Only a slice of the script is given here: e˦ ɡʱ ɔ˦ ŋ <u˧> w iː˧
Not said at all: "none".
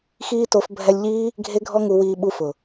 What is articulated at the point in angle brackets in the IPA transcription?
u˧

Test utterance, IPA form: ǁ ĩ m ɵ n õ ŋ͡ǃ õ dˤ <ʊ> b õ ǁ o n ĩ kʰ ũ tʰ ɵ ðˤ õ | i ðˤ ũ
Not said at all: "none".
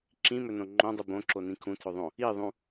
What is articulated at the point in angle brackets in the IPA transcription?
u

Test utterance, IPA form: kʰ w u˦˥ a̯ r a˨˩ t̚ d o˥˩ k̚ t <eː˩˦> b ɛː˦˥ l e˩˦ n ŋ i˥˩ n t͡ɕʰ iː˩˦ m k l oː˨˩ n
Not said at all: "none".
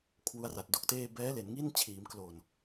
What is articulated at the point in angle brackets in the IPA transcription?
eː˥˩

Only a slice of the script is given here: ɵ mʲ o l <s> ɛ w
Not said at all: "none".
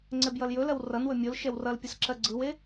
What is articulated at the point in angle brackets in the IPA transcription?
ʃ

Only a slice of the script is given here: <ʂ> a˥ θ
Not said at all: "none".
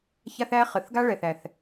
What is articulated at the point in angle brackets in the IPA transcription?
ç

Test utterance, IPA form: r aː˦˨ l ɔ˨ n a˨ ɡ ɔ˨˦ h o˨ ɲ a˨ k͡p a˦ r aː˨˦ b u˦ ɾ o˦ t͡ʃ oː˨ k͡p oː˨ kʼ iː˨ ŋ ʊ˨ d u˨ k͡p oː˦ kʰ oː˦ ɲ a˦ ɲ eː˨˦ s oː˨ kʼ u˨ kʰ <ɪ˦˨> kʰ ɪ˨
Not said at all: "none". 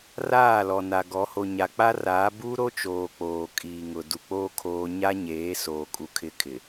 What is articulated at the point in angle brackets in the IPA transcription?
ɪ˦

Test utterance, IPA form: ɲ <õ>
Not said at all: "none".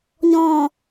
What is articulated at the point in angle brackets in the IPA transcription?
ɔ̃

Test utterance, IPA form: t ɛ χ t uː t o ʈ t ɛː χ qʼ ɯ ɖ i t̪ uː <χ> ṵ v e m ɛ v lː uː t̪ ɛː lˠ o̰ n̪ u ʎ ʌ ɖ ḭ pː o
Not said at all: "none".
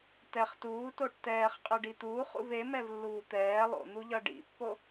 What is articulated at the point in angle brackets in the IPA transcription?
χ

